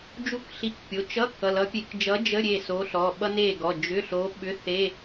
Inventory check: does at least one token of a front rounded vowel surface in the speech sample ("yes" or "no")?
yes